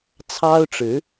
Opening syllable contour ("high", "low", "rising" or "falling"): high